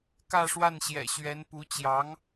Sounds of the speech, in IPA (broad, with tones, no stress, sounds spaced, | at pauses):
k ä˥˧ ʂ w a˥˩ n ɕ j ɛ̰˨˩ ɕ ɥ ɛ˧˥ n p u˧˥ t͡ɕ j ɑ˧˥ ŋ